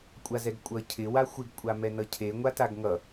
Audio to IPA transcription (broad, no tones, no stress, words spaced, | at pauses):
kʷʼazɛɡkʷʼʌ cʰɪ waxʷɪɡ kʷʼamɛnʌcʰe ŋʷataɡŋʌ